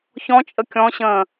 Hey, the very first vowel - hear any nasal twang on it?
yes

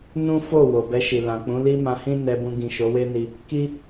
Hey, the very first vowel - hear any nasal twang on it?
yes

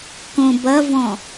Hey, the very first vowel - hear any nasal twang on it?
yes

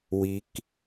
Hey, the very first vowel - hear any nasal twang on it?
no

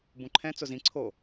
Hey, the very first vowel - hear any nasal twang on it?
yes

